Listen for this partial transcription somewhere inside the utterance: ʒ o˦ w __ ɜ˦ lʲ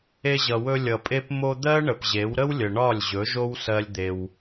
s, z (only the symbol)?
s